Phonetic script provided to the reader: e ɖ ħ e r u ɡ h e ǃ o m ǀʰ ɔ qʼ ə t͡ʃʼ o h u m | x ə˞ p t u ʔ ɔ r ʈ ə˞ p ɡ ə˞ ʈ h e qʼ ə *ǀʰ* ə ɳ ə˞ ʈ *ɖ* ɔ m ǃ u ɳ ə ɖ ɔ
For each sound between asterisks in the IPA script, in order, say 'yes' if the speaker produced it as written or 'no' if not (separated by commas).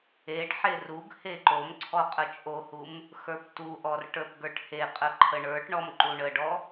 no, no